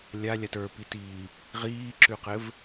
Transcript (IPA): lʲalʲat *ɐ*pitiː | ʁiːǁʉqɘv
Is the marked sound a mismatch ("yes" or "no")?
yes